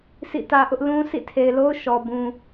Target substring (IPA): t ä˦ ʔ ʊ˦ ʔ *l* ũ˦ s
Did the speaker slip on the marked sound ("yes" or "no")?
no